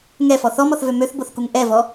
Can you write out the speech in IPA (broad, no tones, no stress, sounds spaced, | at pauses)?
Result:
ŋ ɛ f ɔ θ ɔ m ɔ θ v ø m ø θ b o θ k u ŋ ʔ ɛ v ɔ